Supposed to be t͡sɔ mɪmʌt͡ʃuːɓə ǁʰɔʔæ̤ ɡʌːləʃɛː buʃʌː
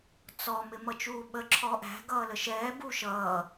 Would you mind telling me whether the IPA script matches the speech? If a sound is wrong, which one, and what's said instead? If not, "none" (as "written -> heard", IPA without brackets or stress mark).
none